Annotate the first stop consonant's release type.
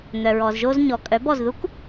ejective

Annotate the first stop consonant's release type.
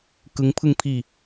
plain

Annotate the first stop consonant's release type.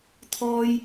aspirated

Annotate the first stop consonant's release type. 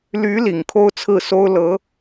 aspirated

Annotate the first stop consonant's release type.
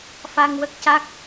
plain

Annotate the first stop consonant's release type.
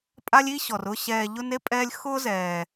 ejective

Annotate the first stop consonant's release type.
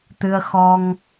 plain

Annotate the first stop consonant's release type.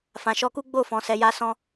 plain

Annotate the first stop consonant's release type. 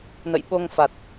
implosive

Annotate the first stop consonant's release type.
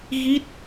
plain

